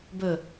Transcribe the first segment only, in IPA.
b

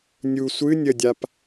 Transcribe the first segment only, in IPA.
nʲ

